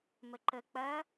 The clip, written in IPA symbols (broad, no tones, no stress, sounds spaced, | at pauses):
m ə ǃ ə k͡p ɐ